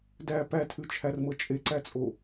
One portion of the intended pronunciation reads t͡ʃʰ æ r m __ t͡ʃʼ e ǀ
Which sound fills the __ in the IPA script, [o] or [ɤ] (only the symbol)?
ɤ